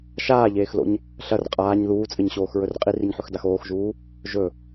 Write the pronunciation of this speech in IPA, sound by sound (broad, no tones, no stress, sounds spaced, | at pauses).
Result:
ʃ aː ʎ eː x l o̰ ɲ | ɬ ɐ r qʼ aː ɲ ð uː t͡sʼ ɨ ɲ ɕ oː x ɹ ɵ r qʼ i r i ɲ ħ ɵ x d a x oː x ʒ uː | ʒ ɵ